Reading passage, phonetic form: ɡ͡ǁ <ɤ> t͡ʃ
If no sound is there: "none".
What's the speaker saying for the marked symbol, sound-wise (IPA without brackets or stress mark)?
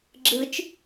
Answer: ɯ